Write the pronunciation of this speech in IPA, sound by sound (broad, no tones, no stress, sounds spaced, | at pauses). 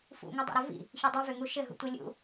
f ṵ ŋ ɘ dˤ o̰ ɾ ɘ v ḭ | ç ʏ dˤ i v ʏ ŋ u ʃ ɘ ɦ ṵ tʷ i lʲ ṵ